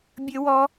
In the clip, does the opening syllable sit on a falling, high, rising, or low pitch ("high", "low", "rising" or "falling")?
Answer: high